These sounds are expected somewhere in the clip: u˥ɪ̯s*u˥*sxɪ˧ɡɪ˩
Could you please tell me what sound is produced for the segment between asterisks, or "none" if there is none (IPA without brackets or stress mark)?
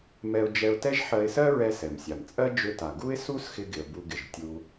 u˥